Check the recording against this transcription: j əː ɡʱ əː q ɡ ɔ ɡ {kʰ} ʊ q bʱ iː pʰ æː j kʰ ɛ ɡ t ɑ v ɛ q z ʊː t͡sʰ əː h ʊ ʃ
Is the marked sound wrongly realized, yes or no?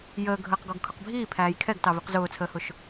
no